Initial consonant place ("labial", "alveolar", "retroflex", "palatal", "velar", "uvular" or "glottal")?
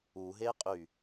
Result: glottal